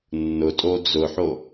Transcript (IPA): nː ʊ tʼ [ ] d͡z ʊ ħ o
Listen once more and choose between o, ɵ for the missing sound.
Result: o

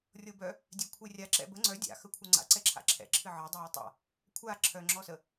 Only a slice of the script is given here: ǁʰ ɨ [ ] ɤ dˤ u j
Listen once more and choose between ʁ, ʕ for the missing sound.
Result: ʕ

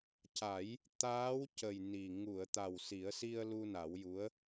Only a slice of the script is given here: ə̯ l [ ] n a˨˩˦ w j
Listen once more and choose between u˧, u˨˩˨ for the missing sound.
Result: u˧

